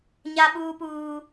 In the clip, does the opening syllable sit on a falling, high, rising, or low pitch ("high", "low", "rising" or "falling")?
high